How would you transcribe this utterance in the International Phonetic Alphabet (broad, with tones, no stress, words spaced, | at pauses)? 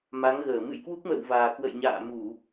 ma˨˦ŋɣəː˧˩ mɨ̰˧˨jkwu˦˥k̚mə̰ː˧˨wvaː˨˩ kwə̰˧˨jɲa̰ː˧˨mu˧˩˨